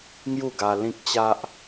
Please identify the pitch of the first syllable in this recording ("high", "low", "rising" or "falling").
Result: falling